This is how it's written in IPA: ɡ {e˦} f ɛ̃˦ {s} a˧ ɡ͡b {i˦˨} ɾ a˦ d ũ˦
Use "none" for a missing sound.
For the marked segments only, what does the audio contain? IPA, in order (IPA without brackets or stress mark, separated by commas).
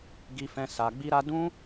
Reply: i˦, s, i˦